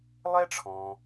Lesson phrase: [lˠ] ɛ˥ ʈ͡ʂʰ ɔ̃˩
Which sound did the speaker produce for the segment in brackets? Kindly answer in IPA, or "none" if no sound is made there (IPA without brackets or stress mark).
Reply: lˠ